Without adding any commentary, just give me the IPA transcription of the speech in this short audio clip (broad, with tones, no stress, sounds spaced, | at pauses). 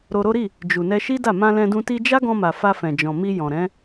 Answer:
ɾ o˧ ɾ o˦ ɾ i˦˨ | d͡ʒ u˨ n ɛ˧ ʃ i˦ d a˦˨ m ã˧ l ɛ̃˧ d ũ˧ t i˧ d͡ʒ a˦ ɡ ɔ̃˧ m a˨ f a˧ f ɛ̃˨ d͡ʒ ɔ̃˨ m i˧ j ɔ̃˨ ɾ ɛ̃˨˦